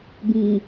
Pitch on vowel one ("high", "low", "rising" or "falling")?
low